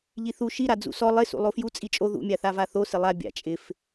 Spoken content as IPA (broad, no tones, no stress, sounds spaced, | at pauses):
ʎ i θ u ʃ i ɾ a d͡z ṵ s ɔ lˠ ɪ s ṵ lˠ o f j u t͡sʼ i t͡ʃʼ o ð ṵ mʲ a θ a v a θ o s ɪ lˠ a bʲ a̰ t͡ʃʼ ɪ f